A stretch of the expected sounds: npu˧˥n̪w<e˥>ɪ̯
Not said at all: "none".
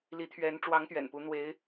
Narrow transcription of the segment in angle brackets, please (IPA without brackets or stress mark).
e˧˥